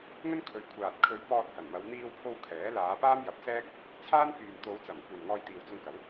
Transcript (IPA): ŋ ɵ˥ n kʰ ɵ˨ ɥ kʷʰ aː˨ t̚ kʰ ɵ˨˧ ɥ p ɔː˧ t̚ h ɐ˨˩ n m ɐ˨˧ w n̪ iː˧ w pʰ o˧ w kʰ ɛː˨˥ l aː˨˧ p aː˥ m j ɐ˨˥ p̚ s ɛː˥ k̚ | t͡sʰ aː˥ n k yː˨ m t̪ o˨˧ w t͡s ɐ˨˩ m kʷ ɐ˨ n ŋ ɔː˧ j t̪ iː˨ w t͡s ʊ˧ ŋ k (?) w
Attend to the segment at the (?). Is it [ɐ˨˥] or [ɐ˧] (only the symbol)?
ɐ˨˥